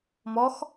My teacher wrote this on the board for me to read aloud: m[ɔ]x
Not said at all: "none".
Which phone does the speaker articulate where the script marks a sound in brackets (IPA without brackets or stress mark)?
ɔ